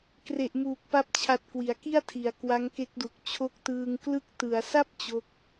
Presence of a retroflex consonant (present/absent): absent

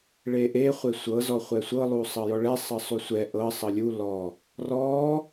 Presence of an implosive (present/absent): absent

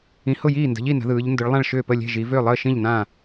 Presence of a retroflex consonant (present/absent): present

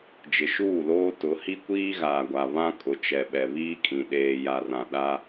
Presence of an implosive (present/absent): present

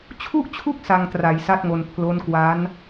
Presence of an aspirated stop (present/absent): present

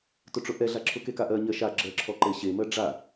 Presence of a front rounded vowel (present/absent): absent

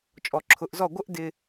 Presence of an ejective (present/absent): present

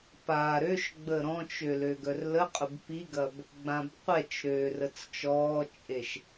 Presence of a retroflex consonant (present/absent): absent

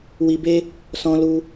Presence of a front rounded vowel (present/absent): absent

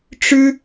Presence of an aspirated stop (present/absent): absent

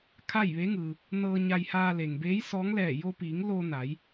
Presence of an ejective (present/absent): absent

